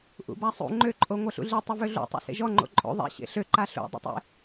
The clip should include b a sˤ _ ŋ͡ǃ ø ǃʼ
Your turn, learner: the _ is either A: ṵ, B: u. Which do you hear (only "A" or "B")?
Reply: A